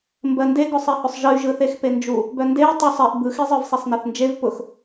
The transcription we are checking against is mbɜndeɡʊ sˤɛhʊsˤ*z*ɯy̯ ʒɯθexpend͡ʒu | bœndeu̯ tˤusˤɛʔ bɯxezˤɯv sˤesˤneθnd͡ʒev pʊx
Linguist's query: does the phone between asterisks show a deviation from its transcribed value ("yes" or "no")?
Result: yes